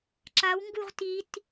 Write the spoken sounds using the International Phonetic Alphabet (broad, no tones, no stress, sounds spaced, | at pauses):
ǁ a w ŋ ɡ u ʁ t i t